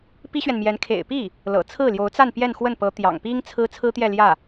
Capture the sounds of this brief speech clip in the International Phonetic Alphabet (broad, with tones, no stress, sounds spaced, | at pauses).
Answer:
p i˥ ɕ ɥ ɛ˨ n m j ɛ˧˥ n kʰ ḛ˨˩ ɪ̯ p i˥˩ | l ɤ̰˨˩ t͡sʰ ɹ̩˥˩ l j o˧˥ ʊ̯ t͡s a˥˧ n p j ɛ˥˧ n x w ə˥˩ n p ɤ˧˥ t̪ j ɑ̰˨˩ ŋ p i˥ ŋ t͡sʰ ɹ̩˥ t͡sʰ ɹ̩˥ t̪ j ɛ˥˧ l j ä˥˩